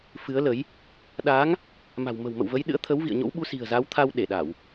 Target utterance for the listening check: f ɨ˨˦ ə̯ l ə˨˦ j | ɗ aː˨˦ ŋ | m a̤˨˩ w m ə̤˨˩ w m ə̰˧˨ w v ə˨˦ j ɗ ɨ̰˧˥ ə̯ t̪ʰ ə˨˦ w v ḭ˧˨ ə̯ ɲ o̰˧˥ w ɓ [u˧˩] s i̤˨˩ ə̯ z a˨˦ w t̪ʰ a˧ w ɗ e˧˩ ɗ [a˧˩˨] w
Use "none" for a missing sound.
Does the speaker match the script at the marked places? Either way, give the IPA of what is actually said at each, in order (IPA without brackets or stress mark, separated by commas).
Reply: u˨˦, a˧˩˨